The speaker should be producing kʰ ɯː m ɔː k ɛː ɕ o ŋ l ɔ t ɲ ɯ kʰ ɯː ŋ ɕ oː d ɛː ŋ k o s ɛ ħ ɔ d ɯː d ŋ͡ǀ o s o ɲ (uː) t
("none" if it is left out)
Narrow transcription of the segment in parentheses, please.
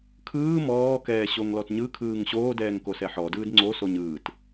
ɯː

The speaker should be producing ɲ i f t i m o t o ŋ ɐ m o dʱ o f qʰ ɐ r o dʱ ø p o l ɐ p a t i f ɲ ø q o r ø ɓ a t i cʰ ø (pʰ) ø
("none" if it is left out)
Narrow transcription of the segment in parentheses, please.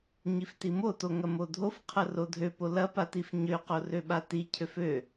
f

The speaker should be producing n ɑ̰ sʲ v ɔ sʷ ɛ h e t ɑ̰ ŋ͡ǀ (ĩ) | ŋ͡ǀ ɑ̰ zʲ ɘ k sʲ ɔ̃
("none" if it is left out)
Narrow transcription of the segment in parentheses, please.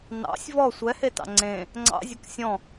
ẽ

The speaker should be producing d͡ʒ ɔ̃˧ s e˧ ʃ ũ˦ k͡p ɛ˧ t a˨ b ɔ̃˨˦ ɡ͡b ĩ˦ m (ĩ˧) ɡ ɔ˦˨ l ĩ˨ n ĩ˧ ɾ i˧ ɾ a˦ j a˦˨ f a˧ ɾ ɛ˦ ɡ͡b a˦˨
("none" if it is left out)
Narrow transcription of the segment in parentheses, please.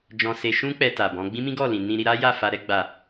ĩ˦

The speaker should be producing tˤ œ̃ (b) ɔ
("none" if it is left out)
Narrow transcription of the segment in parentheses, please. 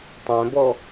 b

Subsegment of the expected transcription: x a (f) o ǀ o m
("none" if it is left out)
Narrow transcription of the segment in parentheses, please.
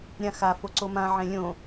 f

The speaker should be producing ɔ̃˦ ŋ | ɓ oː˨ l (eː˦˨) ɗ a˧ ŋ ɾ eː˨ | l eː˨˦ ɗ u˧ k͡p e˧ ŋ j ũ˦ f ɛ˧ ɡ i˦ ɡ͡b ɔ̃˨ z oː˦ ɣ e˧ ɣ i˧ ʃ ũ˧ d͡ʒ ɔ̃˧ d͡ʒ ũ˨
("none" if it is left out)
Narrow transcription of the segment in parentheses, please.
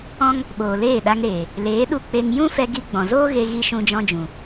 eː˦˨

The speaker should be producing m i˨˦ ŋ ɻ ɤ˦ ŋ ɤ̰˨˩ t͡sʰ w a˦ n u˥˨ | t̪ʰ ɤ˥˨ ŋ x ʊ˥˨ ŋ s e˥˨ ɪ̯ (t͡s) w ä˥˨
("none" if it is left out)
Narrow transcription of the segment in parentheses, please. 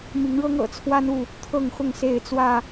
t͡s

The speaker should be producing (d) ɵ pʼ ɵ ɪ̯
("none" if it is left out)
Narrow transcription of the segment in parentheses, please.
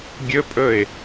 ɡʲ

